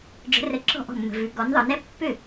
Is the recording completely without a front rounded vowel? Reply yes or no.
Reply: no